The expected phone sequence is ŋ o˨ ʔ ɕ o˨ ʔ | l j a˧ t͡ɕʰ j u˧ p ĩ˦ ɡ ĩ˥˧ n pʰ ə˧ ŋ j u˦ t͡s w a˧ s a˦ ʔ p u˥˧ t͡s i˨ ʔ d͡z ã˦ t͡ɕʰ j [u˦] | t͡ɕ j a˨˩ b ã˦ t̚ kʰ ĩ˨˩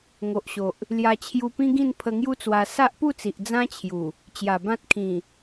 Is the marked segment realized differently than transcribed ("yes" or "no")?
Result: yes